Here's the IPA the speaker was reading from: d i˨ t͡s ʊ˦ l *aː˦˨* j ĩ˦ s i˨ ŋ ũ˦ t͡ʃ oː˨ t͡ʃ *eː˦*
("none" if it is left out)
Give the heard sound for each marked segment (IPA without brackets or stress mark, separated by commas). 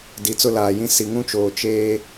aː˨, eː˦